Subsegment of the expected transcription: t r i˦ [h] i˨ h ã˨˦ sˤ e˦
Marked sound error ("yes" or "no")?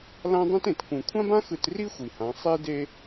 yes